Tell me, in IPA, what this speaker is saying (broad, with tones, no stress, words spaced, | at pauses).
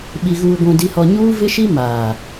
ɓi˨ɣuː˨ɡʷũ˨ di˨hɔ˨ ɲuː˦vɪ˦ʃi˦ maː˨